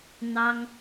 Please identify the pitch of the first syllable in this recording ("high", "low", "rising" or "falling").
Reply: high